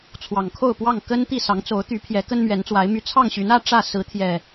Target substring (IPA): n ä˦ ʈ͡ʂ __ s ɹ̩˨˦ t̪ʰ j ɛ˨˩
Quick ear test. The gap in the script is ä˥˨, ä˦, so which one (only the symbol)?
ä˥˨